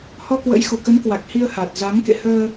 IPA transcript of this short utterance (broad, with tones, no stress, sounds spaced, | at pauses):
h ɔ˧ k w ə̰˧˥ j x u˧˩ k ə˨˦ n k w a˨˩ k̚ h i˧ ə̯ h a˨˩ t̚ z a˨˦ ŋ k ḛ˧˨ h əː˧